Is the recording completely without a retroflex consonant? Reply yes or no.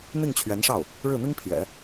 no